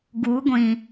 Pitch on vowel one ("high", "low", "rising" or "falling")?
rising